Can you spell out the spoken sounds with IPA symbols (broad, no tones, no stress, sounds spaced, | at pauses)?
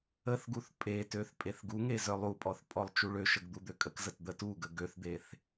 ə θ ɡ u θ pʼ e t ø θ pʼ e θ ɡ u ŋ e z œ lˠ u pʼ ɔ θ pʼ ɔ lˠ t͡ʃ u ɭ ø ʃ ə ɡ d̪ u d̪ ø kʼ ə k z ə t d̪ ə t u ɡ ə ɡ ø θ d̪ e θ